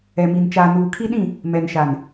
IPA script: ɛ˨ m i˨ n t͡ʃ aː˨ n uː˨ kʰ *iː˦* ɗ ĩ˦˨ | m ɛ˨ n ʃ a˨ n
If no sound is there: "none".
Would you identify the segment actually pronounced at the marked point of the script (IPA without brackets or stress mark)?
i˦